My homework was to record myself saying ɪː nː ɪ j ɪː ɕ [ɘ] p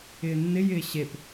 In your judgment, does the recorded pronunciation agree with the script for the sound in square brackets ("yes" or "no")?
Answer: no